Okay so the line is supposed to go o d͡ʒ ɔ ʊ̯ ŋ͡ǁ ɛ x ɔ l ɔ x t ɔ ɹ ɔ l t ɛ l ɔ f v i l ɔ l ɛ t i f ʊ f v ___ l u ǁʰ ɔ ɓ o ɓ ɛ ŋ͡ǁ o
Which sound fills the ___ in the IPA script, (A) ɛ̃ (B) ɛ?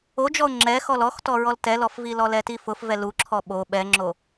B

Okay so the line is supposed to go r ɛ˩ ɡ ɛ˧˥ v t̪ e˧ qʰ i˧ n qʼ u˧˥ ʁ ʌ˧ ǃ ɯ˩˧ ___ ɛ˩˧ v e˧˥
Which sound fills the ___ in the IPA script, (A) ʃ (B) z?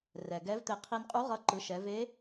A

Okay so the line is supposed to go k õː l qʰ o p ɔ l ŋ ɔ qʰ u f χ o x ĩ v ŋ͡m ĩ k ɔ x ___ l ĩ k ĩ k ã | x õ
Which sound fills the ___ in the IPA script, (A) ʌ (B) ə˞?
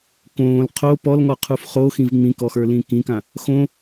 B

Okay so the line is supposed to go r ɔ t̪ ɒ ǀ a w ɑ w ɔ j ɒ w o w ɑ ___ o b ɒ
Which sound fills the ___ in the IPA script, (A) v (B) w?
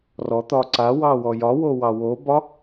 B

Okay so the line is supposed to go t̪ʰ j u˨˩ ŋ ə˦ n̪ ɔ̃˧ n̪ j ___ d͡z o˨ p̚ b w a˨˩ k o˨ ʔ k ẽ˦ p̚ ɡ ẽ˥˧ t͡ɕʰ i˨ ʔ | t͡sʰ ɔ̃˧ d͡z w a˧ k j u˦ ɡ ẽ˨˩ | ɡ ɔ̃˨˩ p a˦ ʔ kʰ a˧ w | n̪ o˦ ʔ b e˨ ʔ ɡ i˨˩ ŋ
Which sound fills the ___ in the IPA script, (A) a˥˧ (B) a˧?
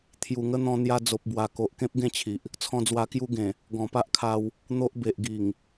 B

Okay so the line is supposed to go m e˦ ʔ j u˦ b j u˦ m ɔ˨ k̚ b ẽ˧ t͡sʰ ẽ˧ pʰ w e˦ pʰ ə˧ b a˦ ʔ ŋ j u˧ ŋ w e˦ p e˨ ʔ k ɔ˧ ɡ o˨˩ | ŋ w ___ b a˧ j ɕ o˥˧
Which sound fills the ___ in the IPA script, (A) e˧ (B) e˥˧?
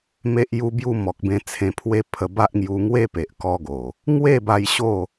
B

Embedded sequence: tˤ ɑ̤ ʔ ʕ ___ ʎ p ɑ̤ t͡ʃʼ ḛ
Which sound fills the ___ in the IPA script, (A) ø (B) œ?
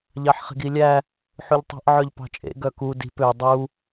B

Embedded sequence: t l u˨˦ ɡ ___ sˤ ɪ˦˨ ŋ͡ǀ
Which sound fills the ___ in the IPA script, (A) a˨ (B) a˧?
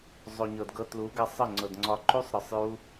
B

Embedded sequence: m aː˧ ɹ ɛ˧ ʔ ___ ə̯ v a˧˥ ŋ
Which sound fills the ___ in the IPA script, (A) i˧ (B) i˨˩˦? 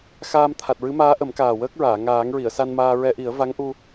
B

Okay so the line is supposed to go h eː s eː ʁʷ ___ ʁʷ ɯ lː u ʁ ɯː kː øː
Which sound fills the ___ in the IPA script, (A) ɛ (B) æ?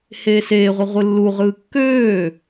B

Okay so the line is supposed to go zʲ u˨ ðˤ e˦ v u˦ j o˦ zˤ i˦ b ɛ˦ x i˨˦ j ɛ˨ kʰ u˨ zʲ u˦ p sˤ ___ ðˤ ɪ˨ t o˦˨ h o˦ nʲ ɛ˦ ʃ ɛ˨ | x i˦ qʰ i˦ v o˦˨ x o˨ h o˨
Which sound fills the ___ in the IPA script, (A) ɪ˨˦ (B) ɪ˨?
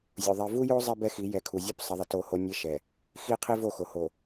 A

